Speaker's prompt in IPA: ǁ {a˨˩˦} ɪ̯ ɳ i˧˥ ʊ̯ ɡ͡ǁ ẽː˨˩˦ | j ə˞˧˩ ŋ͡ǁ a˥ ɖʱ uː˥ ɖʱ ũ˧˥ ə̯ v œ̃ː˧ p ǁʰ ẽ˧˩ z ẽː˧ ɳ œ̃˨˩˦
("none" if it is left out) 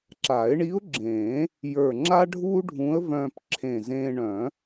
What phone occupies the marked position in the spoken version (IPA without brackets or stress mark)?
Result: a˨˩˦